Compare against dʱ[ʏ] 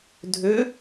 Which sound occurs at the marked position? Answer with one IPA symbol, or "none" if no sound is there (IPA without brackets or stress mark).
ʏ